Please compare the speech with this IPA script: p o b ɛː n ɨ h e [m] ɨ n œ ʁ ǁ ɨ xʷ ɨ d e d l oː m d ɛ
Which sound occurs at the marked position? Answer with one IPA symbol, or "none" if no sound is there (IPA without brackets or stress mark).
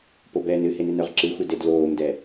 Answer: n